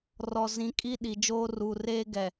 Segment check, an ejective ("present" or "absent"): present